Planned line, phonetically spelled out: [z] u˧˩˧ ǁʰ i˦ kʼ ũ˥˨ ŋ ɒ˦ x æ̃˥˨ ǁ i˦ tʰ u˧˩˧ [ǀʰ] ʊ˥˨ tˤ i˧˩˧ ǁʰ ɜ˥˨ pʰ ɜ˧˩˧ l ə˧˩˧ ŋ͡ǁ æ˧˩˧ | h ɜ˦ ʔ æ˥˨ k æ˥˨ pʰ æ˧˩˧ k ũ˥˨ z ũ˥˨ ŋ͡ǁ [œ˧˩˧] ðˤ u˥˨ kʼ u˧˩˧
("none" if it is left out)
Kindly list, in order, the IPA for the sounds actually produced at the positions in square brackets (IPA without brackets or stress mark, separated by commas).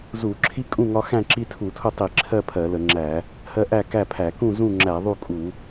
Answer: z, tʰ, æ˧˩˧